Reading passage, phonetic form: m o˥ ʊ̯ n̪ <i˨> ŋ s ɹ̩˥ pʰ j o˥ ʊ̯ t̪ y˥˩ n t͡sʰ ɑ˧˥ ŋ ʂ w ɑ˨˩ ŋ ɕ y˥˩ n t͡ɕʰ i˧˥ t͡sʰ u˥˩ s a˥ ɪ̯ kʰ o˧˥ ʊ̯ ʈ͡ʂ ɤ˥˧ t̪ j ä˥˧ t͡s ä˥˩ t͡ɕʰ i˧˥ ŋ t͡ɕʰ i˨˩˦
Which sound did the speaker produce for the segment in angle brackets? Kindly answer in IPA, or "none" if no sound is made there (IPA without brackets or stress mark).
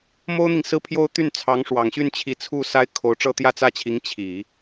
i˨